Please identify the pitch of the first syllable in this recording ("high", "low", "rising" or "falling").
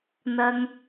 low